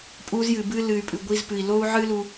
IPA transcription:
pʼu˧zjɨ˨bɨ˧ lɨ˨y̯pʼɨ˨ ɡʷi˧zpɨ˨i̯ lo˦u̯ʕɨ˦lu˧

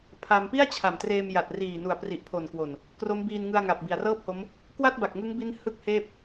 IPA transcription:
pʰa˧m pi˥˩a̯t͡ɕʰa˨˩mtreː˧m ja˨˩t̚riː˨˩nu˨˩a̯ pri˨˩ʔpʰo˨˩nkwo˨˩n | kro˦˥mbiː˧nŋɯ˧a̯ ŋa˨˩p̚bi˨˩a̯rɤː˥˩p̚ho˦˥m | kwa˥˩t̚ba˨˩k̚ŋɯ˦˥ŋbi˦˥n hɯ˥˩k̚heː˥˩p̚

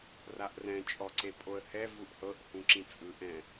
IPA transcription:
raʔrɛ̃t͡ʃʼɔ ǀepʼoə̯hɛ vuʔhɤʔ hũǁĩt͡sʼɯ ʔɛ̃

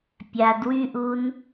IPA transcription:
pʲadwyʔun

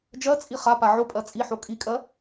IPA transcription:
d͡ʒɜt͡sʼi χapa ʕopʼɜ t͡sʼiħo kʼikʼɜ

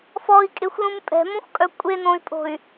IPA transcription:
fɔi̯kʼexʷlũm pʼɛ̤mõxʷkʼœ kʷʼenõy̯pʼo̤y̯

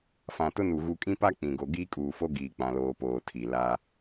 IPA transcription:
fã˨tʊ˦nu˨ ɣu˨kʼĩ˦pa˦ k͡pĩ˨ɡo˨ ɡiː˦kʼuː˨fo˦ ɡiː˦k͡pã˦loː˦ poː˨tʰi˨ la˦

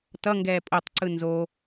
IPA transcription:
tʌŋɡɛː pʼotˤǀɯ nzo

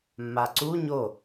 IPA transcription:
mːaǀu ɲo

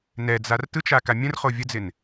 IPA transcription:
nɛd͡zar tɯt͡ʃaka mʲə̃rχo vʲəd͡zɪn

